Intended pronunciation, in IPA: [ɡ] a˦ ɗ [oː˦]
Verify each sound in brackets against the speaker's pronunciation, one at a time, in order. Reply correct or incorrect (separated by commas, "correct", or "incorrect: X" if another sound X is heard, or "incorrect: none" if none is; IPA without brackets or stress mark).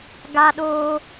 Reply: correct, correct